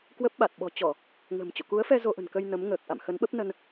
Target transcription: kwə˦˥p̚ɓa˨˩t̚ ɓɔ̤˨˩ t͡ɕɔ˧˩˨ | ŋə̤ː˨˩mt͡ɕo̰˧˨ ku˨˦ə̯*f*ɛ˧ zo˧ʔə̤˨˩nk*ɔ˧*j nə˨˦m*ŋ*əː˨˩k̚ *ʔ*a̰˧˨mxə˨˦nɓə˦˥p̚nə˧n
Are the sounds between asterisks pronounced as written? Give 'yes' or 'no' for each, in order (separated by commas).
yes, no, yes, yes